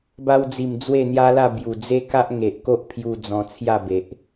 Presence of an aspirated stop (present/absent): present